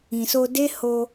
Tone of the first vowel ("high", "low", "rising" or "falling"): low